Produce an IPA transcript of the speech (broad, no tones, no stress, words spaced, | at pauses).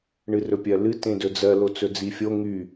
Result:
ɳɨrɵpʲɜlɨ tẽdɵd͡zɜ lot͡sɵd͡zifʲo ŋy